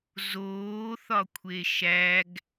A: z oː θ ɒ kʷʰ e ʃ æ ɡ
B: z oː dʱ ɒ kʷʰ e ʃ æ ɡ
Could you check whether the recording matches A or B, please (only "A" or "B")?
A